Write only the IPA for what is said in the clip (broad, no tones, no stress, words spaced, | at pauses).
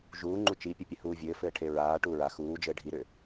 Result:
ʒuːŋ͡ǃu t͡ʃipʲɘpʲɘhuː vʲɘːfɘːʈʰe ɹaː ʈuːɹa xuː d͡ʒɘːɖʱiɾʏ